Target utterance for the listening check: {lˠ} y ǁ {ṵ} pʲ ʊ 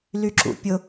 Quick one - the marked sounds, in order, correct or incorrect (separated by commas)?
incorrect, correct